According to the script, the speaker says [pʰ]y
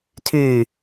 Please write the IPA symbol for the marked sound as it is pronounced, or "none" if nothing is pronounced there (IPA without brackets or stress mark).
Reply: tʰ